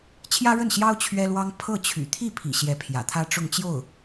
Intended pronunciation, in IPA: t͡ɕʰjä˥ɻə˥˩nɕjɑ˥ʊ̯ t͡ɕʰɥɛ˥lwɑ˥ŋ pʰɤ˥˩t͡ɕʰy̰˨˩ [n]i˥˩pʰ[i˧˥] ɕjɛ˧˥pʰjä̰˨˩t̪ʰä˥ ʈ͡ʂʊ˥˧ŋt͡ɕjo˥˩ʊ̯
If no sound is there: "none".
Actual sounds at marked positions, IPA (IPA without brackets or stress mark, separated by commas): t̪ʰ, ḭ˨˩